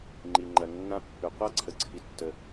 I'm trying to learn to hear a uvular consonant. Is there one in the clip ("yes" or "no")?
yes